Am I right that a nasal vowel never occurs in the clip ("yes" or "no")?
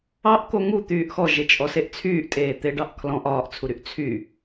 no